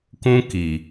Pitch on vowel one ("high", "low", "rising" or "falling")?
high